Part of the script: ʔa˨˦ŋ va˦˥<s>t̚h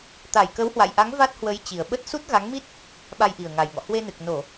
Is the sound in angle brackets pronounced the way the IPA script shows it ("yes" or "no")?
no